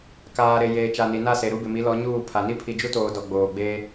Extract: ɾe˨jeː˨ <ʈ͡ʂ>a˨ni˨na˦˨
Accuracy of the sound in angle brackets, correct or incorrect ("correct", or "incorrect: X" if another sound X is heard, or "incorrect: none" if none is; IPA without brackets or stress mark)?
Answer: incorrect: t͡ʃ